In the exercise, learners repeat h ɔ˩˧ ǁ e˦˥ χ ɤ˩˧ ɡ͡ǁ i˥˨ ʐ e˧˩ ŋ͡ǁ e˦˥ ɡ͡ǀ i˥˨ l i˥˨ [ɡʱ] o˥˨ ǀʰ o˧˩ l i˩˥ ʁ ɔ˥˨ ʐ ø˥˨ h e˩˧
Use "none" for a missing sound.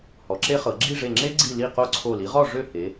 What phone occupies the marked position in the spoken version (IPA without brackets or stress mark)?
q